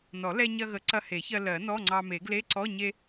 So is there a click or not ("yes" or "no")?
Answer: yes